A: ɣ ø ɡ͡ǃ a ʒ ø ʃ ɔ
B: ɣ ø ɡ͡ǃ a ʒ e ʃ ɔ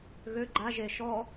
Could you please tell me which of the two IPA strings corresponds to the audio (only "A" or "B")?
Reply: B